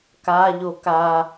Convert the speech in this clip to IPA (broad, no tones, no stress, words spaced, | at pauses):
ka ʎoka